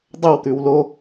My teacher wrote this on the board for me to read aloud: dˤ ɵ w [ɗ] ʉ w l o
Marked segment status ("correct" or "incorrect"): incorrect